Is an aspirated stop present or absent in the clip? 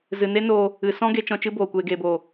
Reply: absent